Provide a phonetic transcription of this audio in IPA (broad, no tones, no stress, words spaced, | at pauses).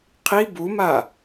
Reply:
qʰi buma